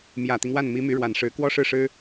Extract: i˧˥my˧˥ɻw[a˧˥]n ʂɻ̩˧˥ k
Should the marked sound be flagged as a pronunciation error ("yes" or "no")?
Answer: yes